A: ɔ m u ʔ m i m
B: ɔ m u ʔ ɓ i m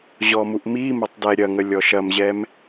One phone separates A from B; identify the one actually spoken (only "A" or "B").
A